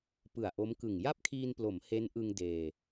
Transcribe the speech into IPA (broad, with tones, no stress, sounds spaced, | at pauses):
p ɯ˨˩ a̯ ʔ o˦˥ m k ɯ˨˩ ŋ j a˥˩ p̚ kʰ iː˧ n p l o˩˦ m h e˦˥ n ʔ ɯ˧ ŋ d eː˧